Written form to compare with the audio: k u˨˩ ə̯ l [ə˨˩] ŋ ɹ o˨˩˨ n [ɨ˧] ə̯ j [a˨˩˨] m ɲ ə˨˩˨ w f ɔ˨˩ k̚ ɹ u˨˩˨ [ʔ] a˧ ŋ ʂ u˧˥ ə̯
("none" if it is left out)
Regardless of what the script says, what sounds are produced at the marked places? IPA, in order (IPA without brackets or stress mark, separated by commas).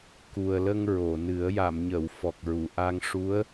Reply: ə˧, ɨ˨˩˦, a˨˩˨, ʔ